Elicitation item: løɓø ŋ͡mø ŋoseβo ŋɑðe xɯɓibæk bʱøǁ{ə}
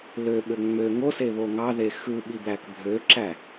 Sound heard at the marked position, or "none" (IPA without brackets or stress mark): æ